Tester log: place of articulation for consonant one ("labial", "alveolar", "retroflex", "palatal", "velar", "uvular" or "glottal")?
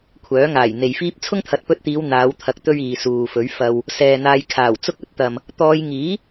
velar